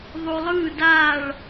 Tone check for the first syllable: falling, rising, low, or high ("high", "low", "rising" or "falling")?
low